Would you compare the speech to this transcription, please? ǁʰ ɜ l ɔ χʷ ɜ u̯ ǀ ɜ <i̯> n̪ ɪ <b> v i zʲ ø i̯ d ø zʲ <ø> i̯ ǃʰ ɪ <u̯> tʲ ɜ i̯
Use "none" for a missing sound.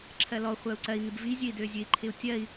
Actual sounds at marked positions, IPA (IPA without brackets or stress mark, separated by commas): i̯, b, ø, u̯